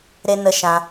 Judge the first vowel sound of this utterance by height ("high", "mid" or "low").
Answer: mid